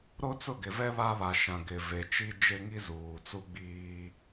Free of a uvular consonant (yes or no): yes